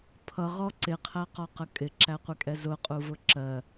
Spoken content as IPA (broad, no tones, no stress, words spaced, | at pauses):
pʰʌʁɔ ǀɪqʰæqɒqə kʼɪǁæqʷɪkʼɛ zʊqʼuvʊ ǁɜ